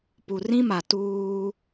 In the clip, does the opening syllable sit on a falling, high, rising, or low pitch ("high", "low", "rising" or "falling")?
low